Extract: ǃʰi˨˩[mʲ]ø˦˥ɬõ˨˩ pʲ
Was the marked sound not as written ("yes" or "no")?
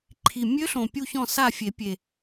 no